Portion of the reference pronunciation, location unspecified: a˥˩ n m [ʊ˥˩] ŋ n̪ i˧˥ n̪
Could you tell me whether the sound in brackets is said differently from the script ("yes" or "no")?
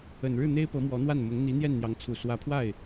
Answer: yes